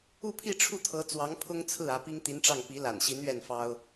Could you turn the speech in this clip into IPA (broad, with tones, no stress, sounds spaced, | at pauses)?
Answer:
u˥˧ pʰ i˥˧ ʈ͡ʂʰ u˥˩ t̪ʰ ɤ˧˥ t͡s w ɑ˧˥ ŋ pʰ ʊ˥ ŋ t͡sʰ ɹ̩˥˩ ä˧˥ p i˥ ŋ t̪ i˧˥ n ʈ͡ʂ ɑ˥˩ ŋ p i˧˥ l a̰˨˩ n ɕ i˧˥ n ɥ ɛ˥˩ n f ɑ˥ ʊ̯